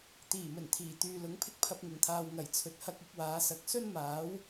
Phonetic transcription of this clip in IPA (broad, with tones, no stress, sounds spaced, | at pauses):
t̪ iː˨˩ m ɵ˨˩ n t̪ʰ iː˨˩ t̪ yː˨ l ʊ˨˥ ŋ pʰ ɪ˥ k̚ pʰ ɐ˧ p̚ ŋ ɪ˨˩ ŋ t̪ʰ aː˨ w ŋ ɐ˨˩ j t͡sʰ ɵ˨ t̚ h ɐ˧ k̚ ɪ˨˥ k̚ w aː˨˧ s ɐ˨˥ k̚ s ɵ˥ n m aː˨˥ w